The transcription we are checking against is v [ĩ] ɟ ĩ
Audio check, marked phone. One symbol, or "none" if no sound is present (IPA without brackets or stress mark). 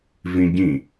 ĩ